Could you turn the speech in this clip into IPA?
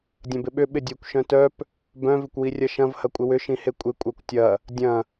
dʲ ɐ̃ b ɪ ɓ ʏ ɓ ɪ dʲ e kʷ ʃ œ̃ t œ p | b œ̃ v ɪ kʷ w i rʲ ɐ ʃ ɐ̃ v h ɐ kʷʼ ɪ w ʏ ʃ ĩ h e kʷʼ ɪ kʷʼ œ kʷ tʲ ɐ | dʲ ɐ̃

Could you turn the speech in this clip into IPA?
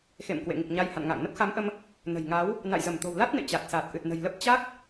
x ḛ˧˨ m k w ḛ˧˨ ŋ i˨˩ k̚ ɲ a˧ j h a̰˧˨ n ŋ a̰ː˧˨ ŋ n ə˦˥ p̚ x a˨˦ m ʔ ə˧ m | n ə̤˨˩ j ŋ a˨˦ w | n a̰˧˨ j z ə˧˩ m t̪ o̤˨˩ w l a˦˥ t̚ n ḛ˧˨ t͡ɕ a˨˩ t̚ s aː˨˩ t̚ ʔ ɨ˨˩ t̚ n ə̤˨˩ j l ə˦˥ p̚ t͡ɕ a˦˥ k̚

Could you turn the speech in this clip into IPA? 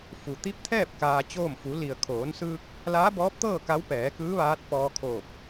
f u˩ t̪ i˧˥ p̚ t̪ʰ ɛː˥˨ p̚ k aː˧ t͡ɕ oː˥˨ m f u˩˧ l i˩ ə̯ kʰ oː˩˧ n s ɯː˧ k̚ | l aː˧˥ b ɔː˧˥ p̚ t̪ ɤː˥˨ k a˧˥ w p ɛː˩˧ k ɯː˧˥ ʋ aː˧˥ t̚ p ɔː˧ kʰ oː˧˩ p̚

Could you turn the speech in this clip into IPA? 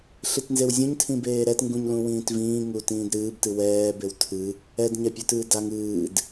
ɬ i t n z e w zʲ ũ ɲ tʰ ĩ b eː ɾ ɛ t ŋ ɡ ũ ɲ l ũ w ĩː t v ĩː ŋ u t ĩː d ɾ ɨː b t ɨ w ɛː b e w tʰ ɨ | ɛ d ɲ ɛ pʲ u t ɨː d a ŋ ɨː d

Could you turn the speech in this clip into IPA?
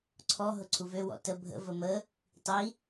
ǀʰ ɔ ɦ ʊ ǀʰ u v ø w ɔ̰ t ə bʱ ə̰ v ə m ə | tˤ i

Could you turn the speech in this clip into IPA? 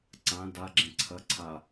ǀ ã d a ɡ͡ǁ ɛ̃ ǀʰ ɐ ǀʰ a

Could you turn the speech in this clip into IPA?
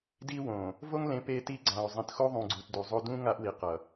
d i˦ w õ˨ | v o˦ ŋ l ẽ˨˦ p e˦ t i˦ ɡ͡ǀ ã˨ o̯ zˤ ĩ˨ t x o˦ ðˤ ũ˨ ɡ͡ǀ u˨ t d u˨ zˤ o˦ d ũ˦ ŋ a˦ ʔ w i˨ q ʌ˨

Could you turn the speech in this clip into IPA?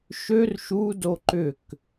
ʃ ø r ʃ u d o ǃ ʏ k

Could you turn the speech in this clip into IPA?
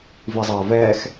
v i zˤ ɐː v ɛː x

